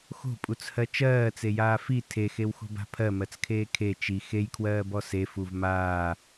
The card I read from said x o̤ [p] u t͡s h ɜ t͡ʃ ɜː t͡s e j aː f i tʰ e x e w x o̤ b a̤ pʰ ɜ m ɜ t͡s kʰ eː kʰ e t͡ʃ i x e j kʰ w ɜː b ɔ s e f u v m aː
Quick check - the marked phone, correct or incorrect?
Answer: incorrect